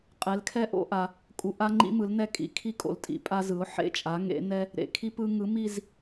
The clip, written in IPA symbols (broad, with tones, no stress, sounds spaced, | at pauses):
qʼ ɛ˩˥ l kʰ ɛ˦ ʔ o̰˦ ʔ a˨ | kʼ u˨ ʔ a˦ ŋ͡ǃ ḭ˦ m ɯ˩˥ l n ɛ˦˨ kʼ ḭ˩˥ kʰ i˦ kʼ o̰˨ l tʼ ḭ˩˥ pʼ a˦ z ɯ˩˥ ʊ̯ ħ ḛ˦ t͡ʃʼ a˩˥ ŋ ḛ˩˥ n ɛ˦ | ɾ ḛ˨ kʰ i˦ p ɯ˦ ŋ ɯ˩˥ m i˦˨ z